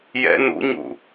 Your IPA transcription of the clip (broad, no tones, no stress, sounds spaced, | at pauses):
j ɛ̰ n ṵ ɲ ṵ